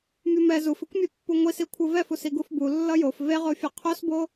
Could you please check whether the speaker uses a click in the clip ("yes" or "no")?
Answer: no